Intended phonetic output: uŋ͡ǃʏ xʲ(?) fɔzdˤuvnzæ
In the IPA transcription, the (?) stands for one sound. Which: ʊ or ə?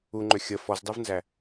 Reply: ə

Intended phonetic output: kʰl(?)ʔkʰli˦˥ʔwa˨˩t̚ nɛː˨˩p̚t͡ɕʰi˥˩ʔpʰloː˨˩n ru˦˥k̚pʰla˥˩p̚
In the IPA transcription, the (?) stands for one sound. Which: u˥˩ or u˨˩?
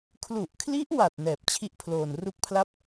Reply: u˨˩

